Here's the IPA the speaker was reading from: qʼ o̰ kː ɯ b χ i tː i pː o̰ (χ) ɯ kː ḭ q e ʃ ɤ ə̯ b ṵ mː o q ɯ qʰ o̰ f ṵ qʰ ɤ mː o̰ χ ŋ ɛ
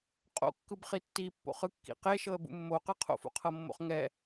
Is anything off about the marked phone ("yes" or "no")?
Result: no